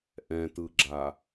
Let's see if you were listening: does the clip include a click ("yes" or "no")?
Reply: yes